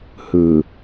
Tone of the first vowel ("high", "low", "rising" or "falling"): low